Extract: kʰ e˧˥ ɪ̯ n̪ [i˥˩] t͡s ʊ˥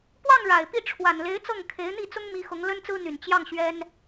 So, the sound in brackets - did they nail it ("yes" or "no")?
yes